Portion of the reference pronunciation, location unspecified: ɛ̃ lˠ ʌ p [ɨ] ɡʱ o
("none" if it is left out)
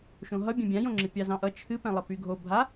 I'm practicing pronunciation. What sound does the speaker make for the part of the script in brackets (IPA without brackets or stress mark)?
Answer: y